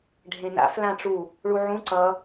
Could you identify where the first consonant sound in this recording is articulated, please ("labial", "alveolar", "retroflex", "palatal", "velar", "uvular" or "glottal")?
retroflex